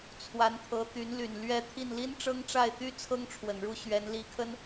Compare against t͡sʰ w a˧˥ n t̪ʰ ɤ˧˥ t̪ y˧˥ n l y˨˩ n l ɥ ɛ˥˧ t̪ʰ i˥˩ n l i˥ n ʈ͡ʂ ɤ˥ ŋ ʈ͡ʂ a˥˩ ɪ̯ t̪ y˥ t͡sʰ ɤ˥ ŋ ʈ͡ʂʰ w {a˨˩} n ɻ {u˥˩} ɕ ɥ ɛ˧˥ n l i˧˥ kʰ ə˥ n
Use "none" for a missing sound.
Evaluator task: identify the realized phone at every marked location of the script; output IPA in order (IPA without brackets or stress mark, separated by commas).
ə˨˩, u˥˩